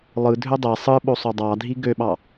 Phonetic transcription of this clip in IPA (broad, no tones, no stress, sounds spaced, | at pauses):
lˠ ɯ dʱ ø dˤ e sˤ ɯ ɓ o sˤ ø dˤ ɑ dʱ i ɡ ø ɓ ɑ